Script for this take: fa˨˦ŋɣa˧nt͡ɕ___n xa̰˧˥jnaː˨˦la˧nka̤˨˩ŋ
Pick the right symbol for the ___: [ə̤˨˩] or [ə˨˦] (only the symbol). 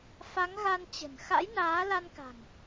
ə̤˨˩